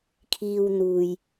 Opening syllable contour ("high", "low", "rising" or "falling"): low